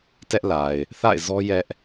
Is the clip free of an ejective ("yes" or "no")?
yes